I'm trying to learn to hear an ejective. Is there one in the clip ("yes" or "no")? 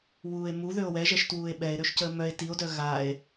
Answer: no